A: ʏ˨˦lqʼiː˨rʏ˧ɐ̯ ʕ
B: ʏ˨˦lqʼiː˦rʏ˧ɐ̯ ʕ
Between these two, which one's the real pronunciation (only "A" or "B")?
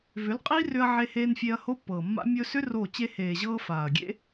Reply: B